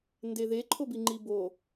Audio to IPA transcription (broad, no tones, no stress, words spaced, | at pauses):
ndeðe ǃʰobiŋ͡ǃibo